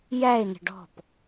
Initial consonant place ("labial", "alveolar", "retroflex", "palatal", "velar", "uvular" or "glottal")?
palatal